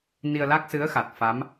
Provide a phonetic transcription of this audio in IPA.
n i˧ ə̯ l a˦˥ k̚ s ɨ˧˥ ə̯ x a˨˩ t̚ f a˧˥ m

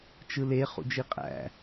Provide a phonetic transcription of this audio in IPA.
t͡ʃ ɯ l e χ ṵ d͡ʒ i qʼ æ̰

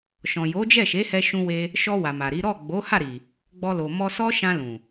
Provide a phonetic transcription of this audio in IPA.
ʃ ɔ̃˨ j o˨˦ d͡ʒ ɛ˦˨ ʃ e˨˦ h ɛ˧ ʃ ũ˧ w e˧ | ʃ ɔ˧ w a˨ m a˨ ɾ i˨˦ ɾ ɔ˦˨ ɡ͡b o˨˦ h a˦˨ ɾ i˨ | ɡ͡b ɔ˧ l o˨ m ɔ˧ s ɔ˦ ʃ ã˧ l ũ˨

